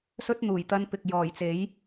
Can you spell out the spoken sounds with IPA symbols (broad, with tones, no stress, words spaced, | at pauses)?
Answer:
sɵ˥t̚ n̪uː˨˩jt̪ɐ˧npɪ˨k̚ jɔː˨˩jt͡se˨˥j